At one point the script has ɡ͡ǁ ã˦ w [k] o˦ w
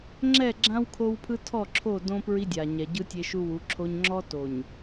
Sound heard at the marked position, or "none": kʰ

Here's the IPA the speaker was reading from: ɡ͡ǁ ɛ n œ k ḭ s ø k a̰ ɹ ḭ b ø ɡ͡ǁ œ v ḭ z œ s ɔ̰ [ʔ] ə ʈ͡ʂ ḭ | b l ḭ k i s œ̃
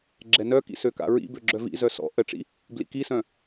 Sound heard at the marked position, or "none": ʔ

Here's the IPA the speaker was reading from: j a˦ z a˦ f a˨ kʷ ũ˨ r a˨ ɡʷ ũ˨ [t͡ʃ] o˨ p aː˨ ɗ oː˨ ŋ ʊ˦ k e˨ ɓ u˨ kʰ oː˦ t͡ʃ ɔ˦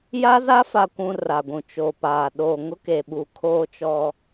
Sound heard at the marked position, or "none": t͡ʃ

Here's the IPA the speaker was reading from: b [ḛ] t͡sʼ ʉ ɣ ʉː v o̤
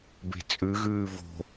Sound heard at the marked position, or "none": e̤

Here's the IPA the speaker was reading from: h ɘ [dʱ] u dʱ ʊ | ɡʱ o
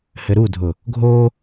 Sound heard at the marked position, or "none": ɾ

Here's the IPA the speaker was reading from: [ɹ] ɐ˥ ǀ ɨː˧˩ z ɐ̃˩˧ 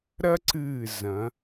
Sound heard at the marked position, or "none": ɾ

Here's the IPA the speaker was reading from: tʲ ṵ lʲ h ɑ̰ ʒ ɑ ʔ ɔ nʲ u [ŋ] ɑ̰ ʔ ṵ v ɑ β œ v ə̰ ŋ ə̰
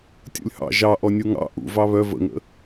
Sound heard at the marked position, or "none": ŋ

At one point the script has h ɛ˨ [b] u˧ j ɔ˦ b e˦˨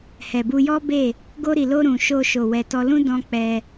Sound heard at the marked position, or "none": b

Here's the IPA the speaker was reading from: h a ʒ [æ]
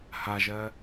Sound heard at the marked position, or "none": ɜ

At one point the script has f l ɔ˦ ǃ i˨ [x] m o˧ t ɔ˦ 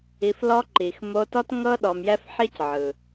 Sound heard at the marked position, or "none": x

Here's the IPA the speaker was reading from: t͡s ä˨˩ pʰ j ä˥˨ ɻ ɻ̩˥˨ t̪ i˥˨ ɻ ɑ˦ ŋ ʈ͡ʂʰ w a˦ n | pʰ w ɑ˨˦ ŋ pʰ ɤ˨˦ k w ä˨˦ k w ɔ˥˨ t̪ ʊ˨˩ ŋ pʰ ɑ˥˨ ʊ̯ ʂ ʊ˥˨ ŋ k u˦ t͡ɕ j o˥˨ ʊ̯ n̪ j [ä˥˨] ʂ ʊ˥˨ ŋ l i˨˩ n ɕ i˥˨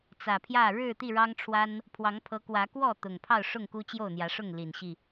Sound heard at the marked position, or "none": ä˨˦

